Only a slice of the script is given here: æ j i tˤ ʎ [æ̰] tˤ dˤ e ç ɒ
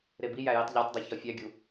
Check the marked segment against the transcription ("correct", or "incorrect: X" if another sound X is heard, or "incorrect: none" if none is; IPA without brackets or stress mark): incorrect: æ